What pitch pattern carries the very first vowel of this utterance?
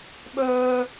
high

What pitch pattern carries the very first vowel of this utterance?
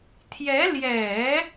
rising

